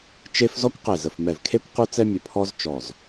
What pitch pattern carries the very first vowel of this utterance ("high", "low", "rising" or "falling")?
high